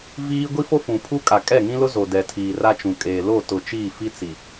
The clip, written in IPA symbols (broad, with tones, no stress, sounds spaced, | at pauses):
v iː˦ ɡʷ i˦ f o˦ f ũ˨ pʰ u˦ kʼ a˨ kʼ ɛ˦˨ ŋ ĩ˦ l ʊ˦ z o˨ d ɛ˨ tʰ iː˨ r a˦ t͡ʃ ũ˨ kʼ eː˨ l o˦˨ t ʊ˨ t͡ʃ iː˦˨ f i˦ t͡s i˨